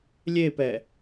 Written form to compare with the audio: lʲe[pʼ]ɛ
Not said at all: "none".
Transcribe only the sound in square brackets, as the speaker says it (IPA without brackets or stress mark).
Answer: p